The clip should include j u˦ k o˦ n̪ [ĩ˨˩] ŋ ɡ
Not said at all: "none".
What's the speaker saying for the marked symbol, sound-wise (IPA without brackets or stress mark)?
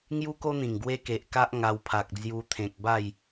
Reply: ĩ˨˩